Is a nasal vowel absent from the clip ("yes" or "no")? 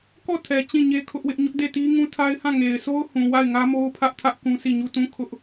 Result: no